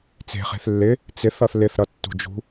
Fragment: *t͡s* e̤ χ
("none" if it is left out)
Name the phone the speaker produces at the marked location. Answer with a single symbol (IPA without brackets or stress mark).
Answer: t͡s